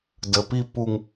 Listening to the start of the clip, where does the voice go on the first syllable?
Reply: low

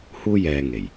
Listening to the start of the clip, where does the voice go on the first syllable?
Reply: high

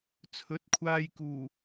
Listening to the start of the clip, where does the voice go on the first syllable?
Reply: rising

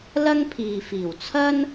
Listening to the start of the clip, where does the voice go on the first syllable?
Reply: high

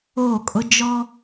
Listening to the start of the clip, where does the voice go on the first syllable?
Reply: falling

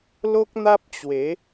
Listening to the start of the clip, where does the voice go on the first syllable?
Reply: high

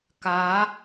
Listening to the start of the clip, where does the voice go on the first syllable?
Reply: rising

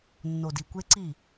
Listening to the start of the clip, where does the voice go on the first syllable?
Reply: low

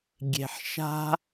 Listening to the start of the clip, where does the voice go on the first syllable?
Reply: low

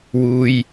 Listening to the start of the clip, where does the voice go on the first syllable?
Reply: low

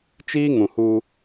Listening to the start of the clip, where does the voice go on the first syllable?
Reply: high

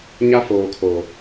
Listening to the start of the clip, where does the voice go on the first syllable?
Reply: high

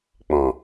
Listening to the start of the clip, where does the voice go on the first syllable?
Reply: low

